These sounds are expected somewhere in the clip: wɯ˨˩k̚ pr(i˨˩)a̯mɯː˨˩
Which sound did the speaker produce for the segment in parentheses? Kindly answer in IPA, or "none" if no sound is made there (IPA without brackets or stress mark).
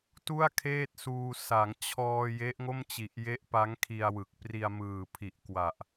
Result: i˧